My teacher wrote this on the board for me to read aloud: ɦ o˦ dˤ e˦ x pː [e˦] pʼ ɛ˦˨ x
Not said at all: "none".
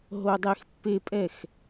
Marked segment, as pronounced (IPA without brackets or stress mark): e˦